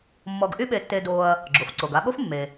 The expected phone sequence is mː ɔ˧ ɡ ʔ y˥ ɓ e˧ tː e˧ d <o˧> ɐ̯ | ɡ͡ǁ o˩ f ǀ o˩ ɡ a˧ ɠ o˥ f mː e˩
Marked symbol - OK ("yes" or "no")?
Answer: yes